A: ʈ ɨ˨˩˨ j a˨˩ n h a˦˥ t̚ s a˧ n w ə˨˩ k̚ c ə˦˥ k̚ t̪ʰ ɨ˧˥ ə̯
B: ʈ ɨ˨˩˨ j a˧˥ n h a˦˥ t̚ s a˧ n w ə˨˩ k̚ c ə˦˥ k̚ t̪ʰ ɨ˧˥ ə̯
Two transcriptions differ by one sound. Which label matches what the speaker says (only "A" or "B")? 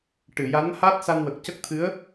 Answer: B